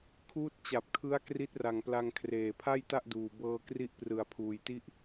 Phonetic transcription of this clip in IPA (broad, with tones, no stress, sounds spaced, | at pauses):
kʰ uː˦˥ t̚ t͡ɕ a˨˩ p̚ kʰ ɯ˦˥ a̯ k r i˦˥ t̚ r a˨˩ ŋ p l a˧ ŋ kʰ r eː˨˩ pʰ a˥˩ j t a˥˩ ʔ d uː˨˩ b ɤː˧ k r i˦˥ ʔ p r ɯ˨˩ a̯ pʰ uː˧ j t i˥˩ ʔ